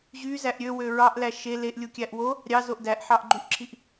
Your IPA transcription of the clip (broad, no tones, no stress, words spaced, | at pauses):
ʑyzæʔ ɾʲøwø ɹɑʔlæ ʃe leʔlʲukʲæʔ wo | ɾʲɑzoʔ dæʔħɑʔɡ͡ǃyʔǁʰiʔ